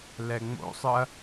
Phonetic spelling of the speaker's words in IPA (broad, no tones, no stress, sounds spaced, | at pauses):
l ɛ ŋ͡m o̰ sˤ ɯ ɐ̯